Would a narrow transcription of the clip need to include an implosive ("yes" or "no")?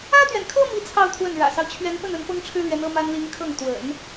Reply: no